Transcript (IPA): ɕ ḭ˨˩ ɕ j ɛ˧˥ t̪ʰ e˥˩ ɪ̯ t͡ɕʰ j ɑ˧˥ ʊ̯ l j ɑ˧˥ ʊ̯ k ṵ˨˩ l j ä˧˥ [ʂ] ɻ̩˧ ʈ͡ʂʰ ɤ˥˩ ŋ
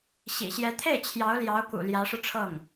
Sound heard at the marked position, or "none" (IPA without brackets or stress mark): ʂ